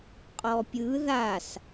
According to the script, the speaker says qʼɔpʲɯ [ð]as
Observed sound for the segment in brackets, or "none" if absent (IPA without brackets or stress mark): ð